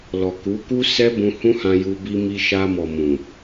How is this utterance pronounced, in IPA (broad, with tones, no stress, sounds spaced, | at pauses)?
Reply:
l ɔ˨ k u˨˦ k u˦ s ɛ˦ b ũ˧ h ũ˦ h ã˧ j u˧ b i˦ m i˦ ʃ a˧ m ɔ˨ m ũ˨